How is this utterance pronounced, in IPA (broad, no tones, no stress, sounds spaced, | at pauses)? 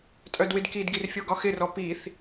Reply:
tʼ œ d w ɪ d k i d ɡ i r fʲ o ɡ ɒ x ɪ r ɔ p i θ